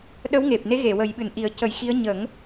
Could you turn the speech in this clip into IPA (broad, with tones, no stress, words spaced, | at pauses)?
ɗə˧˥wŋe˨˩p̚ne˧˥ɣe˨˩˨ wə˨˩˦jɓɨ˨˩nʔi˨˩˦ə̯ cə˨˩˦jxi˧˥ə̯ ɲə˨˩˦ŋ